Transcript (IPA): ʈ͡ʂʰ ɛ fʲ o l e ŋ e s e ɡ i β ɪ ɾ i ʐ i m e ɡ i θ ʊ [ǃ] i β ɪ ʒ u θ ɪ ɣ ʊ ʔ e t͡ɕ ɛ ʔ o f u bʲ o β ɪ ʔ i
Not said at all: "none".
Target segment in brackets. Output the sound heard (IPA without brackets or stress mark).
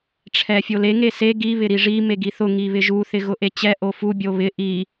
ŋ